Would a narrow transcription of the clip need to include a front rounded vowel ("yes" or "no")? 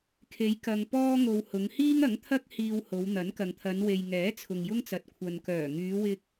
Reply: yes